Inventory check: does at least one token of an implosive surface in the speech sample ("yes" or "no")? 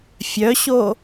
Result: no